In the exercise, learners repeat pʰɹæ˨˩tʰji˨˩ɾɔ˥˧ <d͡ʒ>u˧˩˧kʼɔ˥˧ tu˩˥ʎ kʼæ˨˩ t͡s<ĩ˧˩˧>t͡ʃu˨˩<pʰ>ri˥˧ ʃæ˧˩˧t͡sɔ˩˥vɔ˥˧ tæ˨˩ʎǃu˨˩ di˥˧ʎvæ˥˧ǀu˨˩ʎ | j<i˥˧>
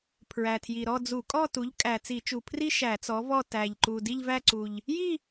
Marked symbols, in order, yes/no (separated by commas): no, no, yes, yes